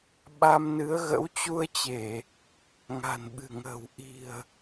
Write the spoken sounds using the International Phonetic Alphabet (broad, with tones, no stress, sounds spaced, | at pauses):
ɓ a˧ m n ɨ˨˦ ə̯ ɣ ə̰˧˥ w t͡ɕ u˧ ə̯ t͡ɕ e˧˩˨ | ŋ a̤˨˩ n ɓ ɨ̤˨˩ ŋ ə̤ː˨˩ w ʔ i̤˨˩ ə̯